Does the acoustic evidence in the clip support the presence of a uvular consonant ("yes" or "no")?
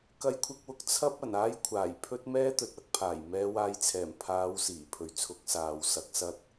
no